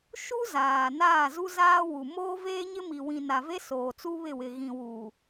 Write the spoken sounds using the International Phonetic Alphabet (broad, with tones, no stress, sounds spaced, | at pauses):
ʃ u˦ z aː˨ n aː˦˨ z u˦ z aː˦ w u˨ m oː˦ v eː˦ ɲ ɪ˦ m i˨ w ĩ˨ n a˨ v e˦ s oː˨ t͡s u˦ β ɪ˦˨ w ɪ˨ ɣ ĩ˨ w uː˨